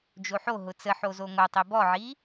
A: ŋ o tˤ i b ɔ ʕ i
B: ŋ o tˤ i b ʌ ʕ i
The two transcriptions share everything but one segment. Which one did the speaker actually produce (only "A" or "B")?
A